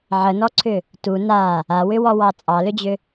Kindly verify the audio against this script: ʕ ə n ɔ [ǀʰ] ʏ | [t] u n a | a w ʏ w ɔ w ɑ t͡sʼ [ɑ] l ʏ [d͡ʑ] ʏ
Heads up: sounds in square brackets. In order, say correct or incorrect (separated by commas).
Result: correct, correct, correct, correct